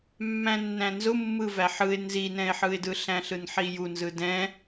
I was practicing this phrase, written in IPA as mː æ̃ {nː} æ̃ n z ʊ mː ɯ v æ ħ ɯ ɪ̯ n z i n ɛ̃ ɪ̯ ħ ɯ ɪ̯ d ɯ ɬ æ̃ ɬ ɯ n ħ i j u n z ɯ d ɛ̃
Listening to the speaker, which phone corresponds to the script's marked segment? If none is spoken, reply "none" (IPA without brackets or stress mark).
nː